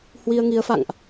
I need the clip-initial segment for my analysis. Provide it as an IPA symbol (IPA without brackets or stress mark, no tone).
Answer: h